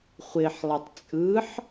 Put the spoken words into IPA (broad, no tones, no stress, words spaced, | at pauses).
χʷɪħlˠɛtˤ t͡sʼɯħ